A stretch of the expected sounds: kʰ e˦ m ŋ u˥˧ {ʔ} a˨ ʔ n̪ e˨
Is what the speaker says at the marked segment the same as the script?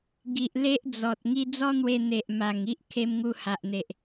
no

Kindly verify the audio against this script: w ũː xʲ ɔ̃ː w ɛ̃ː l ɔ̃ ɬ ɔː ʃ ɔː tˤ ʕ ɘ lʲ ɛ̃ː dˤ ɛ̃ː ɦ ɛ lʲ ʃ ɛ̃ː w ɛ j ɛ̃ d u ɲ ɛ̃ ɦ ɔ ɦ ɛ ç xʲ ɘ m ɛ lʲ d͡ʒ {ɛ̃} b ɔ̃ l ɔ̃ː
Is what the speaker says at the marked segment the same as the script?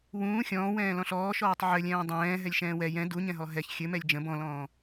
no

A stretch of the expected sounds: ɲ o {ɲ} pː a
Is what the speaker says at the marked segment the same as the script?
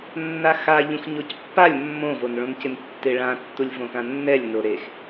no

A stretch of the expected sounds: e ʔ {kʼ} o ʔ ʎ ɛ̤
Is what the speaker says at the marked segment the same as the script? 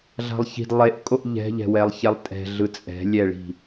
yes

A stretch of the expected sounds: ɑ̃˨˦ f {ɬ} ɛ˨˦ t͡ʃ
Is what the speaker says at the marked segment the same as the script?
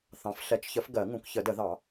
yes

